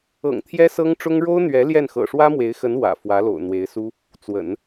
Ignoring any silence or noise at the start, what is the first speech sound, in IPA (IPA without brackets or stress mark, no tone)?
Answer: ɤ̰